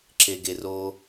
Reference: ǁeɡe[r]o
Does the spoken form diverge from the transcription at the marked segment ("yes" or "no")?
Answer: no